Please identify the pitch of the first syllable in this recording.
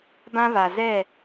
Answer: high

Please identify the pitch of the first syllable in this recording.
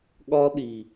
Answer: high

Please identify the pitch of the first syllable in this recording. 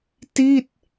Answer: falling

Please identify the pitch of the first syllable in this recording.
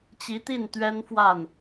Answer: rising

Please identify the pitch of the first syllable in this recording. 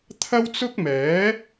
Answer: high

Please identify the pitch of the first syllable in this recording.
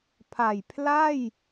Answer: low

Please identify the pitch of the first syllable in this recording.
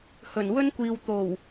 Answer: low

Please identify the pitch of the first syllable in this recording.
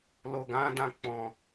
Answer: low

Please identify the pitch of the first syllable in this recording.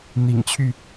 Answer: low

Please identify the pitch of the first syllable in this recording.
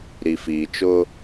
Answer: low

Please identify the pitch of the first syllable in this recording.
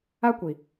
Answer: high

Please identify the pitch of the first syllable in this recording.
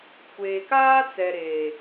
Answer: low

